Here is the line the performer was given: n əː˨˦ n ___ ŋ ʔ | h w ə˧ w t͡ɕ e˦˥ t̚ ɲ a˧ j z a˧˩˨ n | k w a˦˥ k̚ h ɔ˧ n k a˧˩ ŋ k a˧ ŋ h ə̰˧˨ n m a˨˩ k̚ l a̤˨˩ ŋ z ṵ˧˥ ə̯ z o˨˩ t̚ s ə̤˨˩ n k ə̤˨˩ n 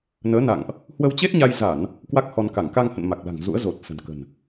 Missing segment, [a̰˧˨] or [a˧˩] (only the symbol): a̰˧˨